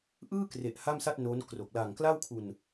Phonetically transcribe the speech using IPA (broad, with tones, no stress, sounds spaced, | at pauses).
ʔ ɯː˥˩ k r e˨˩ ʔ h a˥˩ m s a˥˩ t̚ n o˦˥ n k r o˨˩ k̚ l a˨˩ ŋ k l a˥˩ w kʰ u˧ n